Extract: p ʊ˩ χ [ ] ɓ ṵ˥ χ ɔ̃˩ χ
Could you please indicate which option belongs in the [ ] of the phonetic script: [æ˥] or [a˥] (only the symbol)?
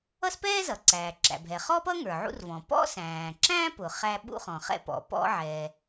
æ˥